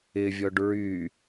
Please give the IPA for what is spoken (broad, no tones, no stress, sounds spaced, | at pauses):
ɪ vʲ ɔ ɖ ɹ y